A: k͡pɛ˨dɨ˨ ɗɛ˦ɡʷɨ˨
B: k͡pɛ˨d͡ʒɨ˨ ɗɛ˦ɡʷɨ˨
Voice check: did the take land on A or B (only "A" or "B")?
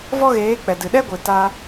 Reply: A